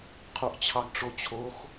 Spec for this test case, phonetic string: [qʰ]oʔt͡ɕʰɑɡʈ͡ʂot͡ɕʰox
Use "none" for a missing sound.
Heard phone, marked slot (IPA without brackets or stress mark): qʰ